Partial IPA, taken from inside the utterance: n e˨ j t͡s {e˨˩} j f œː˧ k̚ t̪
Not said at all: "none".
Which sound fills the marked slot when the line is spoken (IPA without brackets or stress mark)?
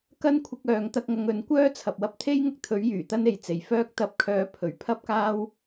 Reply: e˨˩